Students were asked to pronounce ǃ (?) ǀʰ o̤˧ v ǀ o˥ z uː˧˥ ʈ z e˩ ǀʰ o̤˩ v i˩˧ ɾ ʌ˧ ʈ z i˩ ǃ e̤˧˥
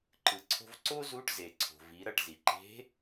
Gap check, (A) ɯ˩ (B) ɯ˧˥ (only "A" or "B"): A